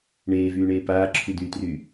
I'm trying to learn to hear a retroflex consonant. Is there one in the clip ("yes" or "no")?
yes